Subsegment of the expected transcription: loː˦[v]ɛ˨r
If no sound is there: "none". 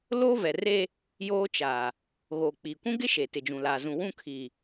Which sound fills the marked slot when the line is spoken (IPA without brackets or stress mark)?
v